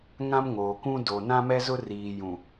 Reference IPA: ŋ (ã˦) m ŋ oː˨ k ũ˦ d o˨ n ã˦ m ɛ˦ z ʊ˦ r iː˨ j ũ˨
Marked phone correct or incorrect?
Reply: correct